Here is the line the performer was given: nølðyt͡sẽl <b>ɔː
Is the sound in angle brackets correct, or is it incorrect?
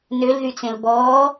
correct